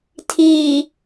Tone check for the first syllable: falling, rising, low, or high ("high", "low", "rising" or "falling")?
low